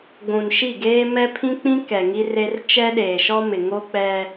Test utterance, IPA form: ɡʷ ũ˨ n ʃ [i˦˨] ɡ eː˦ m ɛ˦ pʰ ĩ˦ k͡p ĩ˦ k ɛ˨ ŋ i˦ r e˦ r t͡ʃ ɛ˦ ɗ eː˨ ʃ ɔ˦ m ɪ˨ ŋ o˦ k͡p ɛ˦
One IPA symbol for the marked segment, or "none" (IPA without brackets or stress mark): i˦˨